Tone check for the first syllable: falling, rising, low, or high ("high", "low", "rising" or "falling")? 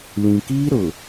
low